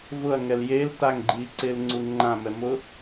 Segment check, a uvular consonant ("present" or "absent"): absent